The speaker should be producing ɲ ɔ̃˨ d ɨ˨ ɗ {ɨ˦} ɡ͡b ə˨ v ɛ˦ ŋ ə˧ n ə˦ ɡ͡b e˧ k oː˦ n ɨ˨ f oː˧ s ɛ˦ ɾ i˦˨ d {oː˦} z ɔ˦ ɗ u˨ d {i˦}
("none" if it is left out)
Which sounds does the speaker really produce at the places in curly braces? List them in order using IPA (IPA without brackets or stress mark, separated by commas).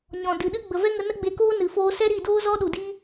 ɨ˦, oː˦, i˦